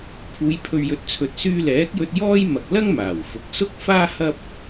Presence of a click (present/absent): absent